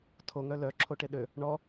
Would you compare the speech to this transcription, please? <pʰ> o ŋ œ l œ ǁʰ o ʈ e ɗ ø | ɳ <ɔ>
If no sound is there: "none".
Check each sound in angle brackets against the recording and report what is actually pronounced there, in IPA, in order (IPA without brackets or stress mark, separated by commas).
tʰ, ɔ